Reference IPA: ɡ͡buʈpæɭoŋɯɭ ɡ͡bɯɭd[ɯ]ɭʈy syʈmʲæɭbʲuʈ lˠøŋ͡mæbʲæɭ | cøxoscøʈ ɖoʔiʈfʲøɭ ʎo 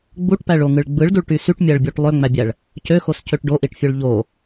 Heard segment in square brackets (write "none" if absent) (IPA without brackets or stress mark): u